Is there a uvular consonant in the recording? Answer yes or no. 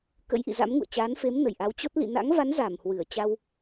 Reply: no